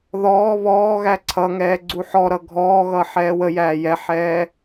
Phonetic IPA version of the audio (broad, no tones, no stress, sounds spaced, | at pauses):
ð ɔː β ɔː ɣ æ ǀʰ ʌ ŋ ɛː ɡ͡ǀ u ħ ɔ ɾ ʌ ɡʱ ɔː ɣ ʌ ħ ɛː w ə j æː j ɛ ħ ɛː